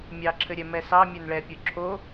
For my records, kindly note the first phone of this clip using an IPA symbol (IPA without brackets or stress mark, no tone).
mʲ